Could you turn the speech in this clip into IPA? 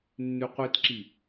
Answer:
nːʉqʷitǁi

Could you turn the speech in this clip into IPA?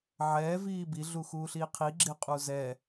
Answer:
ʕɛː viːbi ɮuxuːɬiːqʰi ɡ͡ǁɪ qʼuzɛ

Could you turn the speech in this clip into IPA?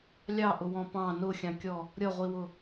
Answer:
lʲɑʔʊwɔ̃ pɑ̃ nʊxʲɑ̃kʲɔ | ɾʲʌʁʷiwʊ

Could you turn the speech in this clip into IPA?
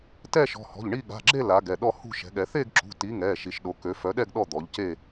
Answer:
tɛ˥˧ʃɔ̤˩˧˩hɔ̤˩˧˩ʎɳi˥˧ ɠa̤˩˧˩ɡ͡ǁe˥˧ la˨˦ɡɛ˩˧˩ɗɔ˥˧ hṳ˥˧ʃɛ̤˨˦ɠɛ˨˦ θe˥˧ɡǁṳ˩˧˩ti˨˦ ŋɛ˩˧˩ ʃi˨˦ʃɗo˨˦kø˨˦ fœ˨˦ɗɛ˥˧ɡ ɗɔ˥˧d̪ɔ˨˦ʎ ce˥˧

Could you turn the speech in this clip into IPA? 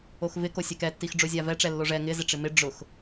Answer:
oxvɪko sʲɛkɛtːix ɖ͡ʐozʲavɛʈ͡ʂɛ lːoʐɛ ŋɪ zɪʈ͡ʂɪmɪ ɖ͡ʐʊx

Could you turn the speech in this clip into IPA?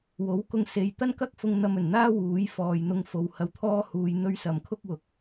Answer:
wo˨˥wkʊ˧ŋse˨j t̪ɐ˥nkɐ˥k̚fʊ˧ŋ n̪ɐ˧mɵ˨˩nn̪aː˥ wuː˨˥jfɔː˨j n̪ʊ˧ŋfo˨˧whɐ˧wt̪ʰɔː˥ huː˧jn̪ɵ˥ɥ sɐ˨mkʰʊ˥k̚ wʊ˨˥k̚

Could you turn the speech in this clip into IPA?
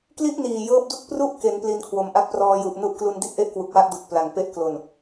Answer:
kli˥˩ʔniː˨˩ jɤː˦˥p̚du˥˩k̚pru˥˩ʔke˩˦n pli˧nkʰwo˩˦mʔa˦˥k̚ prɔː˧ju˨˩ʔnu˥˩ʔ klu˧ndi˦˥t̚ʔe˦˥ʔ kwu˨˩k̚wa˥˩ʔdu˨˩k̚ pla˨˩ŋpe˦˥ʔklo˨˩n

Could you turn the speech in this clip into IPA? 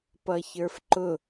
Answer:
pʌçə˞fǃʊ

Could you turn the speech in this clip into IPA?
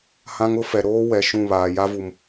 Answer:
hã˦ŋʊ˦fɛ˨ ɾoː˦wɛ˨ ʃũ˦˨βaː˨ja˦vu˨m

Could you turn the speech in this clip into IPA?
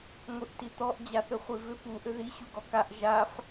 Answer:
ŋʷiʔtit̪ɔʔ d͡ʑaθʏχʷivʏ pu ʔʏði ɕuɡɔkaʔ ʒaf

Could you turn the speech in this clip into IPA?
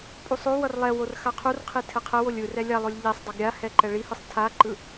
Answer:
pʼusˤowʌr lˠɛwor xaqʰurqʰi tʰɛqʰɛwolʲ ɯrɛ lʲalˠolʲ ʎisˤdˤʌɡ ɾʲahɛ ǃɛɭihɯsˤ tʰaǃɯ

